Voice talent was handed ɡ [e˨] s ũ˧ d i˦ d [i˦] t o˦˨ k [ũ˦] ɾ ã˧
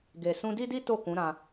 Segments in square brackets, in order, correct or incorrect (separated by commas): correct, correct, incorrect